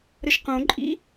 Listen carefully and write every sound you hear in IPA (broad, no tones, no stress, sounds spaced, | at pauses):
ɾ ə ʃ q õ ǃʼ ḭ